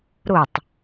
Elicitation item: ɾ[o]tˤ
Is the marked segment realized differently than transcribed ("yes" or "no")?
no